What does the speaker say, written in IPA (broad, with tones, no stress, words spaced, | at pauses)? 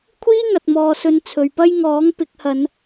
kʷʰiː˥ŋɐ˨t̚mɔː˨sɵ˨˧n t͡sʰɵ˨ɥpɐ˥jŋɔː˨˥ŋ pɪ˨˥k̚hɐ˨˧n